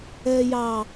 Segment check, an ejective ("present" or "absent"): absent